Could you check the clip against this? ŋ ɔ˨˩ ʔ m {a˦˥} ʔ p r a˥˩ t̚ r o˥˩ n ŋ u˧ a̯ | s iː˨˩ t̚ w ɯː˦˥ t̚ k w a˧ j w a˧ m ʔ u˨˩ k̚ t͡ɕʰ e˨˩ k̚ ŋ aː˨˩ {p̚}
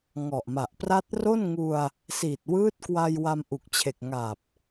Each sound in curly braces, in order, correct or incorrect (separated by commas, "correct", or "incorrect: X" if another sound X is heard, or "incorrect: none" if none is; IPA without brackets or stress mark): incorrect: a˨˩, correct